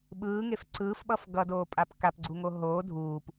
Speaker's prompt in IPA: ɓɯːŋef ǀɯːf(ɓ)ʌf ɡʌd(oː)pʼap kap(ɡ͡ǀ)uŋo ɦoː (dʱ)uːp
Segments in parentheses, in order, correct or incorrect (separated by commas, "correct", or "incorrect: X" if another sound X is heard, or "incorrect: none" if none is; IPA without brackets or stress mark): correct, correct, correct, correct